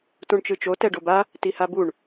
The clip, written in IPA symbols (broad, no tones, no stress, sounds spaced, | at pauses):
t ũ ɳ t͡ʃ ɯ t͡ʃ o t ɛ ɖ o b a | t i h a b u ɳ